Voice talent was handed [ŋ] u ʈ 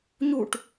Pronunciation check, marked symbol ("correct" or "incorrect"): incorrect